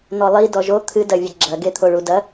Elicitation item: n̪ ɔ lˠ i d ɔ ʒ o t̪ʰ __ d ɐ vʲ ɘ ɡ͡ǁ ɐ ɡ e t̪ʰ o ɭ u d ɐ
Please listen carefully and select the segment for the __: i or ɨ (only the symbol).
ɨ